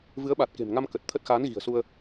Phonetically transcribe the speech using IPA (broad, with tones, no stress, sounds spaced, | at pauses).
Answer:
v ɨ˨˦ ə̯ ɓ a˨˩ t̚ k e̤˨˩ m ŋ a˧ m k ə˨˩ t̚ t̪ʰ ə˦˥ t̚ x aː˨˦ n ɣ i̤˨˩ ə̯ s u˧ ə̯